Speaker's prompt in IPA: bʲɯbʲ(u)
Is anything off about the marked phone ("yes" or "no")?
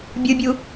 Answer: no